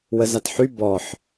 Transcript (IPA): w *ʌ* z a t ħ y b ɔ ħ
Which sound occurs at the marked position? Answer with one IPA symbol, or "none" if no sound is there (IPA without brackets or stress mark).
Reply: ə